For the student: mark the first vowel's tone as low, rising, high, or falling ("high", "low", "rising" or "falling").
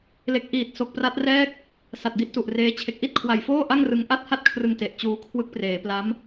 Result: low